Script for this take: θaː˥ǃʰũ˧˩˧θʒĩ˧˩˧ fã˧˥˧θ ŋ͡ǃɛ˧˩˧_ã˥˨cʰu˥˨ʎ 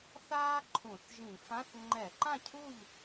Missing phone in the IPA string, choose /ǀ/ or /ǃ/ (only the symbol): ǃ